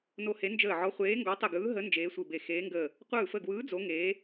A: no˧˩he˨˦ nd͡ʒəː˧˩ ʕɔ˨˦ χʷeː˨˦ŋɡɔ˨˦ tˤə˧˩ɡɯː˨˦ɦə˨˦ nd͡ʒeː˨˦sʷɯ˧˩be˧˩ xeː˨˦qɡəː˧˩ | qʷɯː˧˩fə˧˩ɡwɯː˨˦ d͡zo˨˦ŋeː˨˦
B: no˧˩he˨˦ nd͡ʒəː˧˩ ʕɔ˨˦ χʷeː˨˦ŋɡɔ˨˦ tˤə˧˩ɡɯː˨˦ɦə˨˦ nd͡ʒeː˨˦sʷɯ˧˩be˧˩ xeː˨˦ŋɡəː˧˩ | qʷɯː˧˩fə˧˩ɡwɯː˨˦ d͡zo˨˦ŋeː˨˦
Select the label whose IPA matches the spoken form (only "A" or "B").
B